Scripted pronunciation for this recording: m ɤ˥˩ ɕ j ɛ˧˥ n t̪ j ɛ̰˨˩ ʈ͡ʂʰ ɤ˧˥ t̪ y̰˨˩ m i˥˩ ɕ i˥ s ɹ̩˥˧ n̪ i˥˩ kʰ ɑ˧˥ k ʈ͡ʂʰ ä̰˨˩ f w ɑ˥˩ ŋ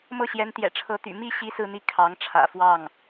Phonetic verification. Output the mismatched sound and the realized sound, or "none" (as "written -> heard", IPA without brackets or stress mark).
k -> ŋ